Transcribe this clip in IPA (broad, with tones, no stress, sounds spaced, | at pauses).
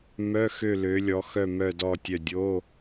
m œ˧˥˧ x ø˦˨ l ø˨˦ lʲ ɔ˨˦ x œ˦˨ m œ˦˨ d ɔ˦˨ tʲ œ˦˨ dʲ o˧˥˧